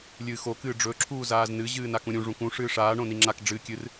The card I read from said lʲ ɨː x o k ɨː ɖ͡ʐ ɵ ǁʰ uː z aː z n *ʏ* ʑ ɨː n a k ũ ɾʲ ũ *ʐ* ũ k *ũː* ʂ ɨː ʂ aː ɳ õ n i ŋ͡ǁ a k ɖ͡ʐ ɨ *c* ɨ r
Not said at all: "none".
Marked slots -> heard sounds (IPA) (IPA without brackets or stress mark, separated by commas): ɨ, ʐ, ũ, kʲ